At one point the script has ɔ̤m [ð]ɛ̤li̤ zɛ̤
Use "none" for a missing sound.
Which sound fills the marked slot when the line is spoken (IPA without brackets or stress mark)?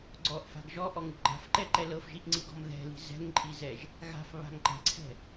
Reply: ð